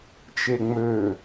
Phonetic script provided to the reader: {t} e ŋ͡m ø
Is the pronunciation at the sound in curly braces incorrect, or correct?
incorrect